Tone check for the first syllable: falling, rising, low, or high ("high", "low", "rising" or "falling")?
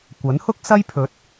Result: rising